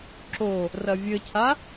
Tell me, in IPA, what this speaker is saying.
ǁ o | r ɐ vʲ ɘ cʰ a

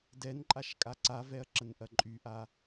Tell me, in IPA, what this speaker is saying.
d ɛ n ǃʼ a ʃ kʼ a ǀ a v ɛ ɐ̯ ǁ ə n ʔ ɐ ǃʼ y ʔ a

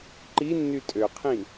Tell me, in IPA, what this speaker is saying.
ǃ i nː y tʼ ø qʰ ĩ

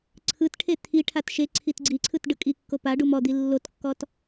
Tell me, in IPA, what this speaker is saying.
ǀʰ ɯ t ʈʰ e t̪ʰ i ʈʰ a t ʃ e ǀʰ i t ɡ͡ǀ i ǀʰ ɯ t ɖ ɯ kʼ i kː o p a ɖ u m ɔ d̪ i lː o t kː ɔ t

